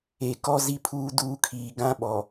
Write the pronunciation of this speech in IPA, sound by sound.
e˨ k ɔ˦ z i˦ pʰ uː˦ d uː˦ kʰ iː˨ ɡ ã˦ ɓ ɔ˨

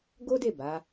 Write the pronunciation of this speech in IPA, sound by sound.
ɡ o˦ d e˦˨ b a˨˦

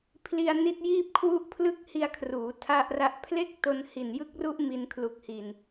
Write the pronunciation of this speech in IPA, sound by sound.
pʰ l i˧ a̯ n i˦˥ t̚ j iː˥˩ p̚ kʰ w u˦˥ ʔ pʰ l ɯ˦˥ k̚ h i˧ a̯ kʰ r uː˩˦ tʰ a˥˩ ʔ r a˥˩ ʔ pʰ l e˥˩ k̚ t o˧ n h i˨˩ n j ɯ˦˥ k̚ r u˦˥ ʔ m i˧ n kʰ l u˨˩ k̚ h i˨˩ n

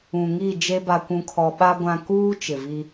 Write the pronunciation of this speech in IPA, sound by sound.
ũ˨ ŋ i˦˨ d͡ʒ e˦ b a˨ kʷ ũ˨ kʰ ɔ˨ ɓ a˦ ɡʷ ã˨ k uː˦ t͡ʃ ɪ˨ v i˦

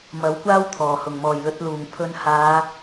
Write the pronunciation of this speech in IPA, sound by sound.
m ɐ˨˥ w kʷ aː˥ w t̪ʰ ɔː˨˩ h ʊ˨˩ ŋ m ɔː˨˩ j l ɵ˨˥ t̚ l uː˨˩ ŋ pʰ ɵ˨˧ n h aː˨˧

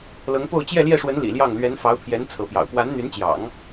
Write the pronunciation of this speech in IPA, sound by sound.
l ɤ˧˥ ŋ p o˥˧ ʊ̯ t͡ɕ j ɛ˥˧ l j ɛ˥˩ ʂ w ə˧˥ n l ḭ˨˩ l j ɑ˥˩ ŋ l ɥ ɛ˧˥ n f ɑ˧˥ ʊ̯ pʰ j ɛ˧˥ n t͡sʰ ɤ˧˥ p j ɑ̰˨˩ ʊ̯ p w a˧˥ n n̪ y˧˥ n t͡ɕ j ɑ̰˨˩˦ ŋ

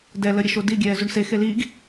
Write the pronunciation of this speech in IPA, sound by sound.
d ɛ l ə ɾʲ ə ʃ o d i ɡʲ ɛː z u ɳ s e x e l iː ɡ

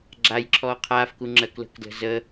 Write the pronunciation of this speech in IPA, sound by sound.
ɡ͡ǁ a j ǁʰ ɔː qʰ aː f k u ŋ͡ǁ ɜ k l ə̤ k d l ə̤ z ə

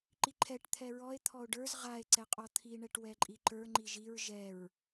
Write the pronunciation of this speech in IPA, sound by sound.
ǃ i ǃʰ ɛ ʈ t̪ʰ ɛ ɹ ɔ e̯ t̪ʰ ɔ o̯ ɖ ə˞ z ʁ a e̯ ǀ ɛ qʼ ɔ t̪ʰ i ɳ ɛ ʈ w ɛ ǃʼ i ǃ ə˞ ŋ͡ǃ i ʒ i ɹ ʒ ɛ ɹ

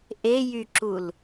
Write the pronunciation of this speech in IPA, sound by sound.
ʔ e j y ǁ u l

